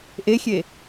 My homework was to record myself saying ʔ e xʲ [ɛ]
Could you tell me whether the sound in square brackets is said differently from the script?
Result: yes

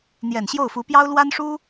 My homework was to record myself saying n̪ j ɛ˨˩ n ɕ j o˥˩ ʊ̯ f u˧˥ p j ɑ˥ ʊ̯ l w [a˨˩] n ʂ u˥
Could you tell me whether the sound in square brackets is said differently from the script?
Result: yes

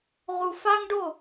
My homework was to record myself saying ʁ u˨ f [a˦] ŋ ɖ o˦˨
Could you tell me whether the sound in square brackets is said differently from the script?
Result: no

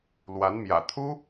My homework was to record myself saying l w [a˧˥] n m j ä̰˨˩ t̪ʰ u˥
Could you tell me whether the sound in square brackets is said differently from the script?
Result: no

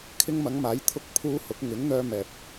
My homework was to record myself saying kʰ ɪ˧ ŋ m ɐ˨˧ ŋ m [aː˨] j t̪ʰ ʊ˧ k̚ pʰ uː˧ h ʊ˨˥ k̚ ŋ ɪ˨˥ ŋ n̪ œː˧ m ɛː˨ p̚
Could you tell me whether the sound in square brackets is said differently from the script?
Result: yes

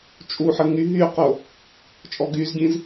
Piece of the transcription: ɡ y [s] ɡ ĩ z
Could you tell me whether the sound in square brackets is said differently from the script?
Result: yes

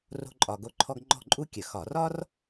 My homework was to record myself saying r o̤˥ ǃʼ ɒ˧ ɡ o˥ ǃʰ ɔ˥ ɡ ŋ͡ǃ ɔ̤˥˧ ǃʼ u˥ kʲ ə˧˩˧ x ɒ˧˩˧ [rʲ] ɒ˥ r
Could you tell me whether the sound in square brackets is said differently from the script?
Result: yes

